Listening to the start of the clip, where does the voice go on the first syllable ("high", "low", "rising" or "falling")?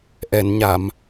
low